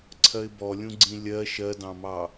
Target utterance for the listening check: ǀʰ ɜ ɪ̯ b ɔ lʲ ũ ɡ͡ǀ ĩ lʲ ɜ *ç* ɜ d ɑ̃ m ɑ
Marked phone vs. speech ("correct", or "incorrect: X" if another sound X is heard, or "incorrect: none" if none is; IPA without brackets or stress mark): incorrect: ʃ